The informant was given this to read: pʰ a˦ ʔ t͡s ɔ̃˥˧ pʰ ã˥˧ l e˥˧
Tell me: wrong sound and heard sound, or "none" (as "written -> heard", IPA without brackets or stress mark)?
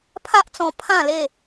ɔ̃˥˧ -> ɔ̃˧